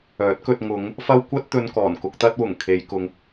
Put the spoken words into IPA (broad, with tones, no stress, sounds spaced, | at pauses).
œː˨˥ t̚ k ɵ˧ t̚ ŋ ʊ˨˧ ŋ | f ɐ˥ w kʷ ɐ˥ t̚ t̪ ɵ˧ n k ɔː˨˩ n k ʊ˧ k̚ t̪ ɐ˥ t̚ w ʊ˨˩ ŋ kʰ e˨˧ j k ʊ˧ ŋ